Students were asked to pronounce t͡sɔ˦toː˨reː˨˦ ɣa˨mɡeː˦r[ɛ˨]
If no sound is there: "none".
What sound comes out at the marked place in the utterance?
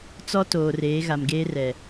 ɛ˨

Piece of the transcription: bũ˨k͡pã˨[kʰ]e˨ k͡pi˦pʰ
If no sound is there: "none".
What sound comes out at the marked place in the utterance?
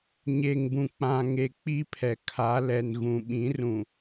ŋ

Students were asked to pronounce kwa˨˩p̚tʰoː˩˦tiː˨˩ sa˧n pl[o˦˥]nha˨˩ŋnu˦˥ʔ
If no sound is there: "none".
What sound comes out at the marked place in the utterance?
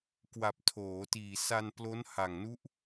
o˦˥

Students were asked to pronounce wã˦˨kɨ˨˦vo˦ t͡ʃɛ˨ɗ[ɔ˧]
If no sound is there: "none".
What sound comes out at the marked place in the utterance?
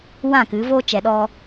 ɔ˧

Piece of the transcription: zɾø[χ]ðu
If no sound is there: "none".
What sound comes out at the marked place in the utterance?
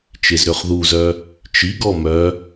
χ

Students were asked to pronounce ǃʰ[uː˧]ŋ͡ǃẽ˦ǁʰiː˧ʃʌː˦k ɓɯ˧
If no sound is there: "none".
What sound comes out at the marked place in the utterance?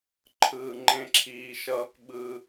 ɯː˧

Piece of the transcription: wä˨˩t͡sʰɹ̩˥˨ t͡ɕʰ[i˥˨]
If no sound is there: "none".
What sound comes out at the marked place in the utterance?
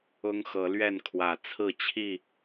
i˥˨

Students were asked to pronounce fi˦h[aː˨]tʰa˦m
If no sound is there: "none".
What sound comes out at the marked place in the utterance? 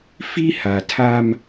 a˨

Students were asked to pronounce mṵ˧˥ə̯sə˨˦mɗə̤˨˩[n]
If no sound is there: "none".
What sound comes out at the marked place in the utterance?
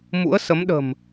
m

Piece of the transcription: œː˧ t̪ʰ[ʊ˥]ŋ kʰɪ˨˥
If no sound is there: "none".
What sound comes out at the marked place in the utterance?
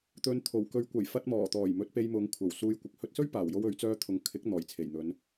ʊ˨˧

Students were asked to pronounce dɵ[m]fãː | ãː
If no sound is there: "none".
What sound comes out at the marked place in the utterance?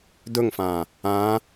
ŋ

